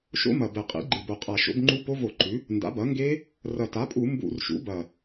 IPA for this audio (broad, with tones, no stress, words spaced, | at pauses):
ʃo̰˦˥mɐ˨˩be˨˩ qʼḭ˩˥ɡ͡ǃɨ˨˩bo˨˩ qʼa˧˩˧ʃo̰˩˥bŋ͡ǃu˦˥ po˦˥vo˧˩˧ǃʉ˩˥ | nda̰˩˥bɐ˩˥ŋɡe˦˥ | rɐ˨˩ta˩˥pʼu˧˩˧ mbṵ˧˩˧rʃṵ˩˥bɐ˨˩